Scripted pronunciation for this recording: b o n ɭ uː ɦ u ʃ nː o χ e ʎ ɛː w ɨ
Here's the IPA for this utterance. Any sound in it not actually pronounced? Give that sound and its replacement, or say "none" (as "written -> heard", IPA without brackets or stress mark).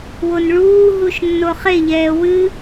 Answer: b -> w